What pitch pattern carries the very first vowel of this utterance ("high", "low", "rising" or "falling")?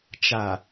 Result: low